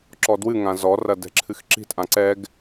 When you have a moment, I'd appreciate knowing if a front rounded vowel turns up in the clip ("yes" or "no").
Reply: no